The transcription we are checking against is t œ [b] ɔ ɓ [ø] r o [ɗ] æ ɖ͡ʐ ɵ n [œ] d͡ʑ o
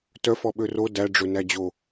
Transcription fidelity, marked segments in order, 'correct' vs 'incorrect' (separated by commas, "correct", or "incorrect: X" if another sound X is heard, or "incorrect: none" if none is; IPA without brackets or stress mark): incorrect: f, correct, incorrect: d, incorrect: æ